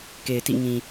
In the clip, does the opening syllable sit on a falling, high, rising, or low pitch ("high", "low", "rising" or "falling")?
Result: low